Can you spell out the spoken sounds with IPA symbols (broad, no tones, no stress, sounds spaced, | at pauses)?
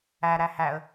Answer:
æ ɾ æ h æ ə̯